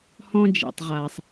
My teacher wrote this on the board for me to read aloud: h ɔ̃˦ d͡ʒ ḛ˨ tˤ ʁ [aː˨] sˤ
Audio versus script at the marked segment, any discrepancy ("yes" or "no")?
no